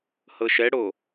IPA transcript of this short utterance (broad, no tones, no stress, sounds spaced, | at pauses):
h ɤ ʃ ɛ ɽ o